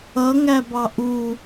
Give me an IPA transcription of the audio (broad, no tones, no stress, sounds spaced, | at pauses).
ʌ ŋ æ b ɑ ʔ u